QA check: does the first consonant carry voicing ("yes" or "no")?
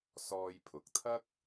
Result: no